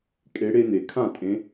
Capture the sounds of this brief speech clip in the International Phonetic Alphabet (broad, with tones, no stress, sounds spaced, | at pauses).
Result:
kʼ e˨˦ ɽ e˦ n e˩ kʰ ã˥˨ tʼ ẽ˨˦